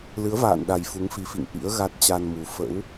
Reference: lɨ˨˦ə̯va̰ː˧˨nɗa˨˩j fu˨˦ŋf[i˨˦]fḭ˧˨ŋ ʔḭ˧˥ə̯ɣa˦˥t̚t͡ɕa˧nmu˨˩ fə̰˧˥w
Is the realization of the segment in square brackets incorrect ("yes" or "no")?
no